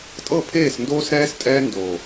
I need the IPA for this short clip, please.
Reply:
tʼ ɤ˦˨ pʰ eː˦˨ s n d oː˦ s ɾ ɛː˦ s tʼ ɛː˦ n d o˨

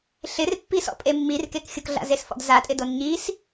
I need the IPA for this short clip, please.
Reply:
ɬ ɪ r pː i s ɔ̰ pʼ e mː i r k e k xʲ ʊ k ɮ a̰ z e s f ɔ̰ d z a tʼ ɪ d o n ɲ i s

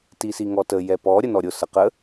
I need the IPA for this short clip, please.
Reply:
t i s i ŋ ɔ t ə j ɛ p ɔ ɾʲ ə n ɔ ɾʲ ʊ s ə q ə

